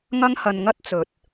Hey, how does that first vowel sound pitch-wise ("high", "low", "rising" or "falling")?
high